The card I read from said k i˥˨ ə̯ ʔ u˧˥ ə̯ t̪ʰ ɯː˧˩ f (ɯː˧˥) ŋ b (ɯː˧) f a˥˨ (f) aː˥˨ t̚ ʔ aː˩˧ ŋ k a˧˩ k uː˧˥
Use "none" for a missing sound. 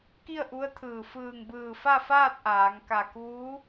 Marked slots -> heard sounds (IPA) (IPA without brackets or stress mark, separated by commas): ɯː˧˩, ɯː˧˩, f